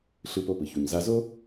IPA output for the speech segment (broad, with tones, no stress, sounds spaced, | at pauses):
ɬ ɯ˧ p o˧ p ɯ˩ ç u˩ ɲ z a˧ z o˥